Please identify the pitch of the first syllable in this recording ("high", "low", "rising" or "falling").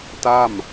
falling